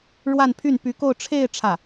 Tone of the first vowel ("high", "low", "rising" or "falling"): falling